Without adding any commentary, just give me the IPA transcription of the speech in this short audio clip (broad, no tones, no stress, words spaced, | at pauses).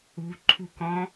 ṳ ǃʰṳkɔ̃